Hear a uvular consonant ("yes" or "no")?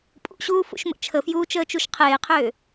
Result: yes